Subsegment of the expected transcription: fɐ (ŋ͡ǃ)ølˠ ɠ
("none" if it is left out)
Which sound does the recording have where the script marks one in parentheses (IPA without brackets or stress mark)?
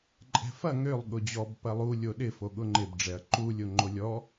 ŋ